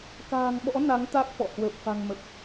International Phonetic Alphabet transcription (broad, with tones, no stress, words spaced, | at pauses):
ka̤ː˨˩ŋɓɔ̰˧˥ na˨˦ŋ t̪a˦˥k̚fɔ̰˧˨ hwəː˨˩p̚fa̤˨˩ŋmə˨˩p̚